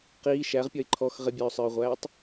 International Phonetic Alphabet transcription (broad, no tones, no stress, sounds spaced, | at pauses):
q iː ʃ æ ʁ pʲ ʌ ɪ̯ ǃʰ ɔ x ʁ ɪ bʲ ɛ ʊ̯ sˤ ə˞ ʊ̯ ʁʷ æː tˤ